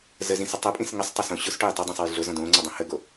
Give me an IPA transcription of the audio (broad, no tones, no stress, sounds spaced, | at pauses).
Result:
z ə z ĩ s ə tˤ ʊ pʼ ĩ s ŋ ə sˤ tˤ ʊ s õ ɕ ʊ s ʈ o j tˤ ɛ dˤ ĩ sˤ ɛ j ɮ ʊ z ɔ̃ d õː ŋ͡ǀ o dˤ õ h ə ɡ o